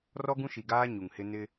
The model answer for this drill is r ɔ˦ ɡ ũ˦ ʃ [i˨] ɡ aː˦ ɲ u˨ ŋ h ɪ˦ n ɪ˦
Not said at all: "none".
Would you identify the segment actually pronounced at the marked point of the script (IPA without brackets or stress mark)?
i˨